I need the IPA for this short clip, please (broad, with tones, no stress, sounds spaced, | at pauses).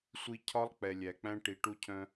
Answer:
sʷ i˨ cʰ ɒ˦ lˠ k͡p ɛ˨ lʲ æ˨ k͡p æ̃˦ ʈ i˨ ʈ u˦ cʰ œ̃˦